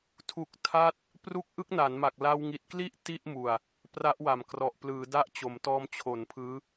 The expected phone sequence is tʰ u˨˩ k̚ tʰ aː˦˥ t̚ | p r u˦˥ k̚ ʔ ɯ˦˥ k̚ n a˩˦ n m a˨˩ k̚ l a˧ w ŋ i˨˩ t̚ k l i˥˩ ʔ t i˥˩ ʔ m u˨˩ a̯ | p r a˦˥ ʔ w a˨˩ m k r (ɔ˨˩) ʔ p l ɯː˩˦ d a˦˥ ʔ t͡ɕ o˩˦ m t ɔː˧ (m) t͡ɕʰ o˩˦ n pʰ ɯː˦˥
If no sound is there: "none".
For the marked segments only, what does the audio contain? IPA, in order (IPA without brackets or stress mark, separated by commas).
ɔ˨˩, m